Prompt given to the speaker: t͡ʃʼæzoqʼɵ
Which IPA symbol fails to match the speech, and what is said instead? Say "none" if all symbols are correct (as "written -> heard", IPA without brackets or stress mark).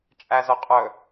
none